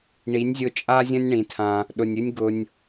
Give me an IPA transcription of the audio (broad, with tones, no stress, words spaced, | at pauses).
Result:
ɳi˨˦nʲzʲʊ˧t͡ʃʼa˦zʲə̃˦nʲ ɳĩ˧tʰã˦ | ɗʊ˨nʲɨ˦nʲ ɡʊ˧nʲ